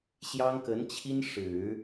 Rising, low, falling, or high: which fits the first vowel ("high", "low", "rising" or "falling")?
high